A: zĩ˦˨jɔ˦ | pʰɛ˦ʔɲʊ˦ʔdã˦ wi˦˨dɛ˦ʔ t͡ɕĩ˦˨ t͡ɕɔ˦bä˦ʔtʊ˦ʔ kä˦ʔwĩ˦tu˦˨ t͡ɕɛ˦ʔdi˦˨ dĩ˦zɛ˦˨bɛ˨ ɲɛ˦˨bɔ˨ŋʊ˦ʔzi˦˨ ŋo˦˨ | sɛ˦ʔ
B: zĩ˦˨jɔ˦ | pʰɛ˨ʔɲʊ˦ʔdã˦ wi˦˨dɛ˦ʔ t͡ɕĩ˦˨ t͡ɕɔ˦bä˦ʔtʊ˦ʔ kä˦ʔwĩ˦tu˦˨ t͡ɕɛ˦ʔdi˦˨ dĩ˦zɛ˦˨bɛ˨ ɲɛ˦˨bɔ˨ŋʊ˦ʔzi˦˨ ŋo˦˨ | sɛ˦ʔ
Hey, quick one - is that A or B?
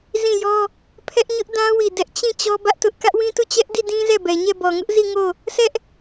A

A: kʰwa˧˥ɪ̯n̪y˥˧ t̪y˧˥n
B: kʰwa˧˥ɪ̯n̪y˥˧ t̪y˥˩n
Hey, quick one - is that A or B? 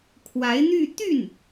B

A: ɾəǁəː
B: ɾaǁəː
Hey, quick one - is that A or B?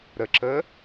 A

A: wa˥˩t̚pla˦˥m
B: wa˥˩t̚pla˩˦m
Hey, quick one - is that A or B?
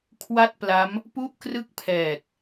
A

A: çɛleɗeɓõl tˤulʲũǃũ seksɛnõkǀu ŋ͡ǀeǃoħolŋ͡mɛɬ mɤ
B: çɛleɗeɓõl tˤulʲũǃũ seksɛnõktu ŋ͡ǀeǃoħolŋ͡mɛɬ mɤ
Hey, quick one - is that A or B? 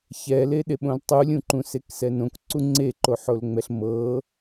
A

